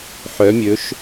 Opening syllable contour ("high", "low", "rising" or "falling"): rising